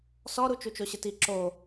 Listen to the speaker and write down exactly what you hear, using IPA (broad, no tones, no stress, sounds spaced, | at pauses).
s ɔ ɾ u t͡ʃ u t͡ʃ o ɕ ɪ t i ǁ o